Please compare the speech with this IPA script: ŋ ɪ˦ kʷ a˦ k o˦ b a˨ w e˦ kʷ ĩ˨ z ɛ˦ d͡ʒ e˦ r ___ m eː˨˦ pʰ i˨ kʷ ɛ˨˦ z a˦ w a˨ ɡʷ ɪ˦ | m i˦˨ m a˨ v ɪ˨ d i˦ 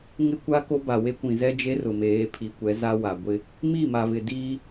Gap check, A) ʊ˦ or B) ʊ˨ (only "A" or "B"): B